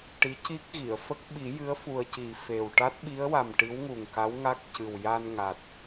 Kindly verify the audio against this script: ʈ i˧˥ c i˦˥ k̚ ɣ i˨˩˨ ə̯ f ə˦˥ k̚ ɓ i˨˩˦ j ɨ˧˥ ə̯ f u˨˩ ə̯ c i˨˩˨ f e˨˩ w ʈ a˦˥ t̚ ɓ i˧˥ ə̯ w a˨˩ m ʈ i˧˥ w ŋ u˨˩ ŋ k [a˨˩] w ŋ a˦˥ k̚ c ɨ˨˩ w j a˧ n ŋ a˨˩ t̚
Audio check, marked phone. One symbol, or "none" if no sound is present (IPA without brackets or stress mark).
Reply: a˧˥